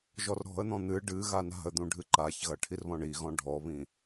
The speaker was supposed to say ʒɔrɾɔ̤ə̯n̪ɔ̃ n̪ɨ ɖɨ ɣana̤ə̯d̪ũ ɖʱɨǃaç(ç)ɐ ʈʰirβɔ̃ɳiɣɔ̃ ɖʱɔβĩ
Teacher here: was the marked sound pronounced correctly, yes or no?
no